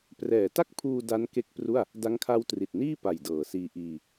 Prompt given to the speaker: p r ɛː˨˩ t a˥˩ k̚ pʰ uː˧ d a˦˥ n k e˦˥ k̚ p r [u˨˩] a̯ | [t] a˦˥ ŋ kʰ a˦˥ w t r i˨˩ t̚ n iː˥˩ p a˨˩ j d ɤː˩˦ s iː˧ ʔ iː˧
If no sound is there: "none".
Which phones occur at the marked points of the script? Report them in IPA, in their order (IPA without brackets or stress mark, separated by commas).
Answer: u˥˩, d